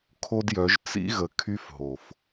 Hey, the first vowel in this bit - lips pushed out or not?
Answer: yes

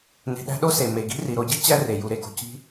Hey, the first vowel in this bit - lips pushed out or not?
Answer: no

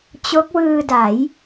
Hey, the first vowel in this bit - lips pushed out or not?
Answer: yes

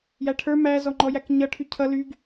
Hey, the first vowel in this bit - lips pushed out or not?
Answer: no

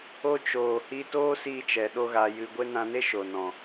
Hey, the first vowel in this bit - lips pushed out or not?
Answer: yes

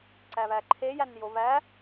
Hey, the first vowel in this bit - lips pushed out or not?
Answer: no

